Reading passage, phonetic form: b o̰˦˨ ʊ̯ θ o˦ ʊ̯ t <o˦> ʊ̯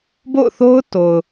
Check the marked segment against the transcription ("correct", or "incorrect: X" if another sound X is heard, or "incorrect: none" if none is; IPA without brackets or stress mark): incorrect: o˨